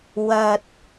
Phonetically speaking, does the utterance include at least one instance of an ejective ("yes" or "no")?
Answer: no